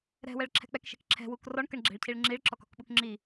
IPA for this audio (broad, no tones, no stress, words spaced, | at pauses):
ɾɛ̤wɛɭǁʰɛ̤ k͡pɛkʃɛ̤k ǁʰɛ̤wuk rɔɳ kəɳɡ͡ǁɛ̤ɭcʰiɭ ŋ͡ǁiɭǁɔkɔ̤kɓuk ŋ͡ǁi